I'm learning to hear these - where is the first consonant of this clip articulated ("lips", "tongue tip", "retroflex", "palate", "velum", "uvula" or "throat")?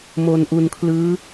lips